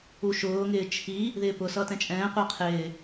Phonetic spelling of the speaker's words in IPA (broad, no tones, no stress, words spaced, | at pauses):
uʃʊːŋɪː t͡ʃʰi | ðɪːpʊsʌ tɛ̃t͡ʃʼɛ̃ːqʷɛ qʰɪː